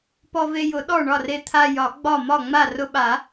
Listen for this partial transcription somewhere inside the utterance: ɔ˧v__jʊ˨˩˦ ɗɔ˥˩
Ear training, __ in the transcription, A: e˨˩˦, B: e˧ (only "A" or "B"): B